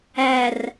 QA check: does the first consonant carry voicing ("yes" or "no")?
yes